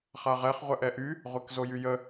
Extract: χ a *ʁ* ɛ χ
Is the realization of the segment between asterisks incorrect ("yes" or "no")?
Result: no